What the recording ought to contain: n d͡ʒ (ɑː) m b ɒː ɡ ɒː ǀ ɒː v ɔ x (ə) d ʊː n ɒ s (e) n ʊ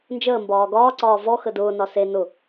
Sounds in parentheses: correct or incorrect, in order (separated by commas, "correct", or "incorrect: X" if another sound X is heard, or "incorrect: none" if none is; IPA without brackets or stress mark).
incorrect: əː, correct, correct